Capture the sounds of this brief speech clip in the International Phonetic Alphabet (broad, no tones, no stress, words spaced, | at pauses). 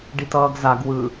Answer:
ɖitʌːɡzaɡ wɯ